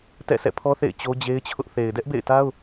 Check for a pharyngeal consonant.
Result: absent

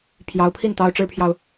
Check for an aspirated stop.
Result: present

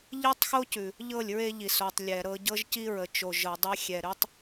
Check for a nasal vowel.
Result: absent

